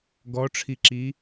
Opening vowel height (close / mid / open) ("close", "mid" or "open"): mid